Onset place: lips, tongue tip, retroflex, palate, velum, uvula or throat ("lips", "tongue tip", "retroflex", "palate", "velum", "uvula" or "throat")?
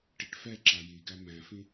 retroflex